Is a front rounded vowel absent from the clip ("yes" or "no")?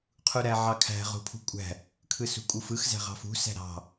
yes